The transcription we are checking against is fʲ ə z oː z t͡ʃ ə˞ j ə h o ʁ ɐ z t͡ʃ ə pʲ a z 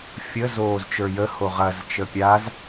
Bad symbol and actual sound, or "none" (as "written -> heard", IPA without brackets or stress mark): none